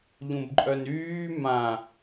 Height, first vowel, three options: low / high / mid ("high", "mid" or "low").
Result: high